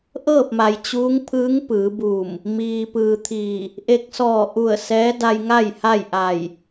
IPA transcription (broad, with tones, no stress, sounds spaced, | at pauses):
ʔ ɤː˥˨ p̚ m a˩ j t͡ɕ uː˧˥ ŋ pʰ ɯː˧˥ ŋ p ɯː˩˧ b uː˧˩ m | m iː˩ p ɯː˩ t̪ʰ iː˧˩ | ʔ e˧ k̚ s ɔː˧˩ ʔ u˧˩ ə̯ s ɛː˧˥ d a˧ j ŋ a˥˨ j h a˥˨ j ʔ a˧˩ j